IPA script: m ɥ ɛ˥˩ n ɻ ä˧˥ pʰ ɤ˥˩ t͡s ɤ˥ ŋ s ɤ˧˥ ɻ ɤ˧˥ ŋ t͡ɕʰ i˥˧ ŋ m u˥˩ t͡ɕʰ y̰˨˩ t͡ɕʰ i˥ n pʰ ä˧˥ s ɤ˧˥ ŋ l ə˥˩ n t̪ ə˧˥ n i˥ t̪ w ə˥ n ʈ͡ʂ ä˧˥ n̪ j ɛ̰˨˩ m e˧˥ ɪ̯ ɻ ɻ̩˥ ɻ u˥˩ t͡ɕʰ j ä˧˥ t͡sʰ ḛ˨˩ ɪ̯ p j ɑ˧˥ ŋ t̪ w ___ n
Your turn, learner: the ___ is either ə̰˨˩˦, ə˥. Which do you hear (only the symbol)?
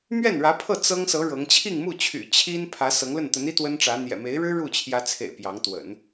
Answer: ə̰˨˩˦